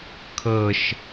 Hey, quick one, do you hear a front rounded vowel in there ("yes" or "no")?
no